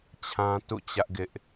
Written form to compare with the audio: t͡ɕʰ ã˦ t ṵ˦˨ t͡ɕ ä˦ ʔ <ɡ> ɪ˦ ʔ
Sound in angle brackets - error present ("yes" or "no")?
no